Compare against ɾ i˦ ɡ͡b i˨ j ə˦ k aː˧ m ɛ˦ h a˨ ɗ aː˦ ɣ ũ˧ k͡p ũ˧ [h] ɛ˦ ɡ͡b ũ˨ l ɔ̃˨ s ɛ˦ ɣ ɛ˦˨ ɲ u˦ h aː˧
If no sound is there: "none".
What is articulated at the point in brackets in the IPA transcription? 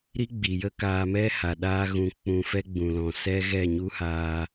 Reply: f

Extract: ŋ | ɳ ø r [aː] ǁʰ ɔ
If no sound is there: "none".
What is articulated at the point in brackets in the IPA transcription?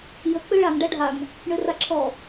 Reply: a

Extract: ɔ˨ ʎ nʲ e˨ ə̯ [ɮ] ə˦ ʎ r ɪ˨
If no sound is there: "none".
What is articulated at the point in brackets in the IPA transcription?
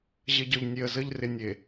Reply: z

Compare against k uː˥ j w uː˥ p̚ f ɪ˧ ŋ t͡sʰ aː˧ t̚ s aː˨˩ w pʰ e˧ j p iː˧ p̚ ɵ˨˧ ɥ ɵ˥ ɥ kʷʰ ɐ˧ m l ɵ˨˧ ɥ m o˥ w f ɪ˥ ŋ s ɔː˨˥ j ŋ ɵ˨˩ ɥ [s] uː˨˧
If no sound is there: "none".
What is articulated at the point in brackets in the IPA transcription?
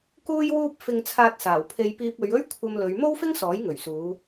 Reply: s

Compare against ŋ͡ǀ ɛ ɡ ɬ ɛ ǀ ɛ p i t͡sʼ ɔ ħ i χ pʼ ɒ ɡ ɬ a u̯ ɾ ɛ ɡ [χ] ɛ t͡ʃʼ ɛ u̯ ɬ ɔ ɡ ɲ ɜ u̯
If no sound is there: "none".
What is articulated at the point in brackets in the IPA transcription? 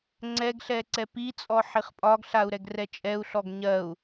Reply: r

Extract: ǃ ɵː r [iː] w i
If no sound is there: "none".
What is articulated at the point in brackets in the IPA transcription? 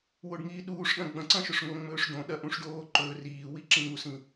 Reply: iː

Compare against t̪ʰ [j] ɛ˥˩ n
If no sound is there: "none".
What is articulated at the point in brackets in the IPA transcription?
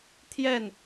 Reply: j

